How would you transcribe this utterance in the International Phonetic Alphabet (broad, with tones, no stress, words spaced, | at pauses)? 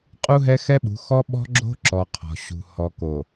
qʼu˦ɦɛ˦xɛ˦ɓṳ˨˦ xɔ˦ ɓɔ̤˦ɡ͡ǁo̤˦ǁɔ˨ qʰɔ̤˨ ɕṳ˨ hɔ˨ko˨